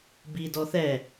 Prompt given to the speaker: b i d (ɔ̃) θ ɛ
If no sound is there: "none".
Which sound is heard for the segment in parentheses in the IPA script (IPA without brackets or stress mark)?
ɔ